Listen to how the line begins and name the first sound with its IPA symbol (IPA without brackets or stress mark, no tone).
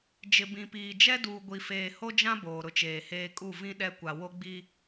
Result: d͡ʒ